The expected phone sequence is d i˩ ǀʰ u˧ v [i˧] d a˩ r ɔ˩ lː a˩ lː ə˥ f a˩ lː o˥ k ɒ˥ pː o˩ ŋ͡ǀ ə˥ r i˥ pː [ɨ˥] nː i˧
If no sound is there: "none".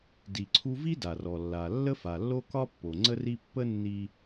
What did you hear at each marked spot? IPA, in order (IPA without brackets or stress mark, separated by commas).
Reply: i˥, ə˥